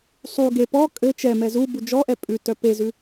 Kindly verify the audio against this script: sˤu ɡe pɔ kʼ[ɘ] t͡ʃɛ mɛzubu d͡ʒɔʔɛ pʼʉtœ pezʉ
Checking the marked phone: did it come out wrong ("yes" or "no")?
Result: no